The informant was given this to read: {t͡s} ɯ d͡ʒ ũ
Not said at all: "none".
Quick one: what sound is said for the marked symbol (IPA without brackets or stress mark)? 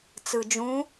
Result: t͡s